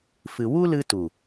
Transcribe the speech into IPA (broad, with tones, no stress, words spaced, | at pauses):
fɨ˨ wu˦lɨ˧tu˨